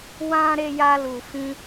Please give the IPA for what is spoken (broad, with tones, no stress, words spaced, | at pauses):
wã˦ ɾe˧ja˧ lu˨fĩ˧